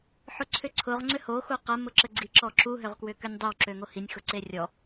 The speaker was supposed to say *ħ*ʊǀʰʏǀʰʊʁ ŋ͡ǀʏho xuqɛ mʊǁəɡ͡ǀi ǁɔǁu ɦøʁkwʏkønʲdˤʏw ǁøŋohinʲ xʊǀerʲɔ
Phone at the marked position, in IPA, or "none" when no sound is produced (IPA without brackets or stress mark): ħ